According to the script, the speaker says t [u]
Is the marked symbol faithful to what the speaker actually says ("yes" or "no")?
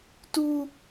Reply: yes